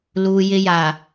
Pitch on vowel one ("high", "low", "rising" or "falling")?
low